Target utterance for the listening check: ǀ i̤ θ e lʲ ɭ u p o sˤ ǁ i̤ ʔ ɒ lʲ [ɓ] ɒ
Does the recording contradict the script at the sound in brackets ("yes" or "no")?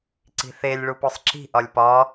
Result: yes